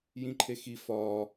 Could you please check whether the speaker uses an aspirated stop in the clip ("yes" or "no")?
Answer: yes